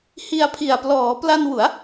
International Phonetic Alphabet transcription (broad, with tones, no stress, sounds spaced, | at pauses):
h i˧ a̯ pʰ i˨˩ a̯ p l ɔː˩˦ p l a˧ n w u˩˦ a̯